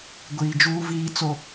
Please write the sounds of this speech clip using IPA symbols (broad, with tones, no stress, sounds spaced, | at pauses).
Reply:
ɡʷ iː˨ d͡ʒ uː˦ v iː˦ t͡s o˦